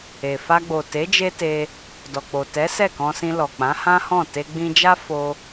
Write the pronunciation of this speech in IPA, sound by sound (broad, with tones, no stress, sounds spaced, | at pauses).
e˨ f a˧ ɡ͡b o˨ t e˨˦ d͡ʒ e˦ t e˧ | d ɔ˨ k͡p o˨ t ɛ˨˦ s ɛ˦˨ k ɔ̃˧ s ĩ˧ l ɔ˨ k͡p ã˨˦ h ã˦ h ɔ̃˦˨ t e˧ ɡ͡b ĩ˧ d͡ʒ a˦ f o˧